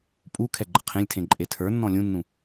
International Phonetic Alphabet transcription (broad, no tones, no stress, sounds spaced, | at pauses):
pʼ u kʰ ɛ ɡ͡ǃ ə̤ qʰ ẽ lʲ tʰ ẽ ǃʼ e tʰ ə˞ nː ɔ̃ lʲ ũ nː ũ